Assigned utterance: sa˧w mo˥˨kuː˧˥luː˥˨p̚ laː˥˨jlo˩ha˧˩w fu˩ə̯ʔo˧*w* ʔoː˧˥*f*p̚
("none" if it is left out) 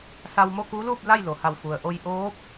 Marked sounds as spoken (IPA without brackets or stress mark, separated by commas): j, none